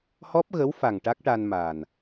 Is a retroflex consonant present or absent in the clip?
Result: present